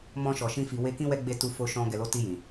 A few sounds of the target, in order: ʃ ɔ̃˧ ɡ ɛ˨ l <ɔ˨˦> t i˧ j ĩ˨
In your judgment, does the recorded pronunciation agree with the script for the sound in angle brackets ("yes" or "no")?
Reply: no